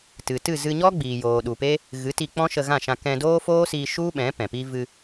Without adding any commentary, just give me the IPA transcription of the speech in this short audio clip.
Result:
t ɨ˨ t ɨ˦˨ z ɨ˧ ɲ ɔ˦ ɡ͡b iː˨ j oː˨ ɗ u˨ p e˦ | ɣ ɨ˨˦ t i˧ k͡p ɔ̃˦ ʃ ə˧ ɣ ã˦˨ ʃ ã˧ k ɛ̃˧ d oː˦ f oː˦ s iː˧ ʃ u˦ ɓ ɛ̃˨˦ p ɛ̃˨ p i˦ v ɨ˧

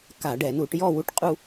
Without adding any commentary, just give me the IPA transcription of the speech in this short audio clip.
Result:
k a˧˩˧ ɖ ɛ˧˩˧ n u˧˩˧ ʈ j ɔ˥˧ w u˥˧ ʈ qʼ u˥˧

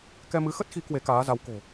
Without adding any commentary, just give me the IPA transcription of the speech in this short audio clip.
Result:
k ɛ˧ m ɨ˨˦ x ə˦˥ t̚ x i˨˦ k w e˨˦ k aː˨˦ z a˨˦ w k o̤˨˩

